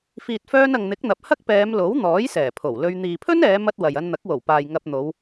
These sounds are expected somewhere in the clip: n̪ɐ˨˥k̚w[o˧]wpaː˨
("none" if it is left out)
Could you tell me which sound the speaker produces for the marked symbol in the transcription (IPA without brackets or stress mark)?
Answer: o˨˩